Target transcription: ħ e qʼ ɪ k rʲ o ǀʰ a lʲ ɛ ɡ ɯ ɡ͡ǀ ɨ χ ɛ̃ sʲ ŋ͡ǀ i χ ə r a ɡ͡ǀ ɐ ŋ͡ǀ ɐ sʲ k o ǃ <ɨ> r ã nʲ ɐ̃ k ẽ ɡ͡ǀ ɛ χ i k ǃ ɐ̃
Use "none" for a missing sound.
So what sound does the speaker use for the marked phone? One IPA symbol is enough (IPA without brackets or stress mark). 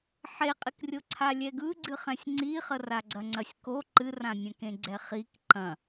ɨ